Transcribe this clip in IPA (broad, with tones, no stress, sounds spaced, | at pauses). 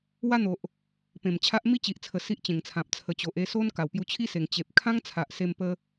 w a˦ n̪ o˨ ʔ | p ẽ˨˩ m t͡ɕʰ a˦ ʔ m i˦ t͡ɕ i˨ ʔ t͡sʰ ə˨˩ s i˦ ʔ t͡ɕ ẽ˨˩ ŋ t͡sʰ ã˨ p̚ t͡sʰ ə˨˩ t͡ɕ o˨ ʔ e˥˧ s o˦ n k a˨˩ w p j u˧ t͡ɕʰ i˦ s e˨˩ ŋ t͡ɕ e˨ p̚ kʰ ã˦ ŋ t͡sʰ a˨ ʔ s e˧ m p ə˧